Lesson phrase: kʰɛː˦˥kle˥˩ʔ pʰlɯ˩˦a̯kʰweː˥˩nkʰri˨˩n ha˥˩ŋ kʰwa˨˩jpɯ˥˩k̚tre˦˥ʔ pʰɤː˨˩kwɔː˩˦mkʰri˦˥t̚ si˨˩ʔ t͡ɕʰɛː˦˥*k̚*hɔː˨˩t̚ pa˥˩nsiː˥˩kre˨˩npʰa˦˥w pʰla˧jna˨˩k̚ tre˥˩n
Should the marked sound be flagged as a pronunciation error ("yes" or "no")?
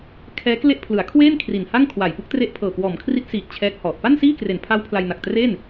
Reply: no